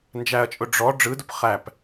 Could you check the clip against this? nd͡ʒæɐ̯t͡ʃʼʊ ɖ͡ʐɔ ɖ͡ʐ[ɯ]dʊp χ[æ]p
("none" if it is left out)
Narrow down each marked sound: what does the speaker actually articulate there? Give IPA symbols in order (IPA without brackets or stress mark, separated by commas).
ɯ, æ